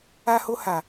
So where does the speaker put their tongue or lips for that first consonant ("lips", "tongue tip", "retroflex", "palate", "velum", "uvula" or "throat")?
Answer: throat